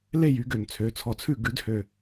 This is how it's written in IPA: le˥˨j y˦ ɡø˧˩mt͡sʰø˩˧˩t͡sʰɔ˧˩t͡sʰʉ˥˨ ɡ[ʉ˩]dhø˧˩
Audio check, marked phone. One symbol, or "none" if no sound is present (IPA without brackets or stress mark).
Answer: ʉ˨˥